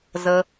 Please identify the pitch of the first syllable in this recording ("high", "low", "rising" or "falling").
high